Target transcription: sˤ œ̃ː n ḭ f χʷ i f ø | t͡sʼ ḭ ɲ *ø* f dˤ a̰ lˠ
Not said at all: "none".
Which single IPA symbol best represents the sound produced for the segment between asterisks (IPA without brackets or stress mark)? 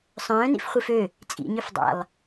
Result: ø